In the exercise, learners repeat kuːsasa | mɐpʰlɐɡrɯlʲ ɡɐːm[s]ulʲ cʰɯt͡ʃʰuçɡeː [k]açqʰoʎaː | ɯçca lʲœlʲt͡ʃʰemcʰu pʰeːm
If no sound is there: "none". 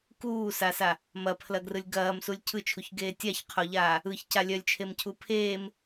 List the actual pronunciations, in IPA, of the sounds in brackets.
s, tʲ

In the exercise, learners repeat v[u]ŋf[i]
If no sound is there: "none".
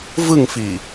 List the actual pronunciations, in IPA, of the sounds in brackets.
ɯ, i

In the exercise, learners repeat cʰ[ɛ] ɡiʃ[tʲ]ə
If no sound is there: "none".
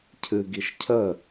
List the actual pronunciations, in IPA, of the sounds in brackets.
ɨ, cʰ

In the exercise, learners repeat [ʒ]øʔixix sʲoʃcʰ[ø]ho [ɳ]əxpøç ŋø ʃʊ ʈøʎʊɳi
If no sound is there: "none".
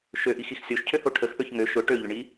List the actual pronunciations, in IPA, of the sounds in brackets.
ʃ, ø, ʈʰ

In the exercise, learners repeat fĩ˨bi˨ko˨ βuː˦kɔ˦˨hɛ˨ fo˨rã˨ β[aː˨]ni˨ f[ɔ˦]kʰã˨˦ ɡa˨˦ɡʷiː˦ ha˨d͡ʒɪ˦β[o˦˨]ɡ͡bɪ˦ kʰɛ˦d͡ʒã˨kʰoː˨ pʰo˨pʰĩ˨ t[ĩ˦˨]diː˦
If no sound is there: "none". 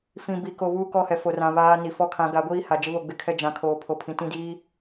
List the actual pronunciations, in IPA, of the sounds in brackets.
aː˦, ɔ˦˨, o˦˨, ĩ˦˨

